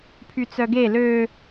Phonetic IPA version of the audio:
pʰ y t͡s œ ɡ e l ø

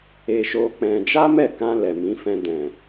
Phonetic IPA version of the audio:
e˧ ʃ o˧ k͡p ɛ̃˧ d͡ʒ a˦ m ɛ˦˨ k ã˧ l ɛ˨ m ĩ˨˦ f ɛ̃˧ d ɛ̃˨

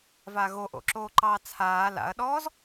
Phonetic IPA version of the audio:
v a ɣ o ʔ o̰ ǁ oː ǃ ɑː t͡sʰ aː l a̰ ɐ̯ ɗ ɔː z

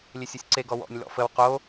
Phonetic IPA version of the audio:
lʲ e sʲ ɔ sʲ ǀ e ɡ ɔ w ɔ̰ nʲ l ɔ̰ f ə w q o

